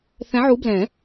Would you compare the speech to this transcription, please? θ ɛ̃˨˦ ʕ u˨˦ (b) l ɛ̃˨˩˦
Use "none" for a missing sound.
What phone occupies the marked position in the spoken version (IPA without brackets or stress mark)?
b